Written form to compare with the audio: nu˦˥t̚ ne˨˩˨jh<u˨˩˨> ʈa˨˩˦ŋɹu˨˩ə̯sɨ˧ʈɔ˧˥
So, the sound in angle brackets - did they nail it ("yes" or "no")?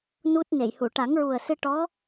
yes